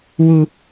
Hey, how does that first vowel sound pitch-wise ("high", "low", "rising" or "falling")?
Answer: low